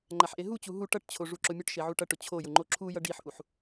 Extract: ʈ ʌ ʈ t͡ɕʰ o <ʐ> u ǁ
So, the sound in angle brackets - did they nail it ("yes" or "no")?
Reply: yes